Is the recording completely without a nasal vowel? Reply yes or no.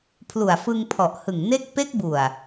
yes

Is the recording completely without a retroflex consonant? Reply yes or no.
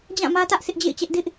yes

